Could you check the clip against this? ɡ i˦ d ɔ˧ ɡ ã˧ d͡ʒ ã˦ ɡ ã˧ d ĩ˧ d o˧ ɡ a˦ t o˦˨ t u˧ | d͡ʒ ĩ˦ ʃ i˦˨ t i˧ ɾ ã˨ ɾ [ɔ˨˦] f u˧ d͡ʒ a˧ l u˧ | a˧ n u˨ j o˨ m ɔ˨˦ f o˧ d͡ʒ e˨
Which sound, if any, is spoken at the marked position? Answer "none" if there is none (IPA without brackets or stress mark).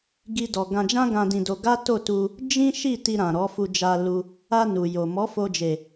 ɔ˨˦